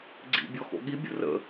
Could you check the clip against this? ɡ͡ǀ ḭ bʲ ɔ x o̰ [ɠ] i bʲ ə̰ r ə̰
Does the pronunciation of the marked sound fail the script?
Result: no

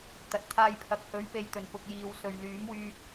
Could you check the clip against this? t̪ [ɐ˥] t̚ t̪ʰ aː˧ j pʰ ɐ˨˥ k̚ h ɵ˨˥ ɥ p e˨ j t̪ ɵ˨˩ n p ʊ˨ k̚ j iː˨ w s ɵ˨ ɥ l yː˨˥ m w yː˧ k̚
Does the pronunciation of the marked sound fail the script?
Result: yes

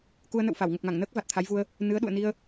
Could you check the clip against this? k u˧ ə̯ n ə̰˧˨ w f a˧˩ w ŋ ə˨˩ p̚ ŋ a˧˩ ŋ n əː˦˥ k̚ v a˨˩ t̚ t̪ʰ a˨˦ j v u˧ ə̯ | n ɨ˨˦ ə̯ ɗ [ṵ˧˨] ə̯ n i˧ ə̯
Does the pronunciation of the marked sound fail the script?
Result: no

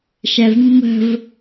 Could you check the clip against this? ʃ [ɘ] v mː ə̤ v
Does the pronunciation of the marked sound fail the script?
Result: yes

